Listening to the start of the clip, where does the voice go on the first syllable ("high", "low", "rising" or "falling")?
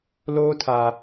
high